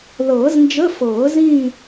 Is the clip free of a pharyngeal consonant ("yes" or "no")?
yes